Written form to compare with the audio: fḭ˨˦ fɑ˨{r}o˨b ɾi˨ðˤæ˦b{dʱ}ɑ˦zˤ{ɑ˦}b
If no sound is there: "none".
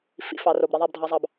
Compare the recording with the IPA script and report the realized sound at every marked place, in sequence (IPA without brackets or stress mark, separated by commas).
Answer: r, dʱ, ɑ˦